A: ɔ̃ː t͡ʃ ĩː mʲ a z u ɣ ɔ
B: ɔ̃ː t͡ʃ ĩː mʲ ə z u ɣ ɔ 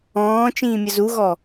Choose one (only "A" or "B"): B